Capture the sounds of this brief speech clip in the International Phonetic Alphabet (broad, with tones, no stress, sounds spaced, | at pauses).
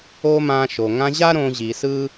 o˦ m ã˧ ʃ o˨ ŋ ã˧ ʑ a˦ ɾ õ˧ ʑ i˨ s ɯ˦